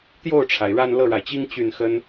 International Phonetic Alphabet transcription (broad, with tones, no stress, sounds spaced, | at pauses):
t̪ j o˥˩ ʊ̯ ʈ͡ʂʰ a˩ ɪ̯ ɻ a˥˧ n l ɤ˥˩ ɻ a˩ ɪ̯ t͡ɕ i˥ ŋ t͡ɕ y˥˩ n x ə˥ n